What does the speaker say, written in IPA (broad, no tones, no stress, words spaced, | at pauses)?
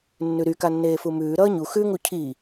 nːʉɾy kanːeːfumʉː ɾʌːɲu xʉŋu cʰi